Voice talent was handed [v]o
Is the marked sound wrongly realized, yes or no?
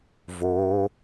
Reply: no